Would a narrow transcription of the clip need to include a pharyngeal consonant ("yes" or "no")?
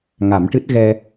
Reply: no